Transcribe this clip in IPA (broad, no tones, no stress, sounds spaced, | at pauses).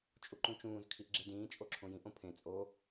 t͡ʃʼ u ǃ ũ t͡ʃ ũː z kʰ i ʔ ɡ͡ǁ e d ĩː t͡ʃʼ o ǁʰ õ j ĩ ʔ õ pʰ ẽ t͡sʼ o